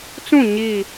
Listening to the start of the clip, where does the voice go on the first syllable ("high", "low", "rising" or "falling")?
falling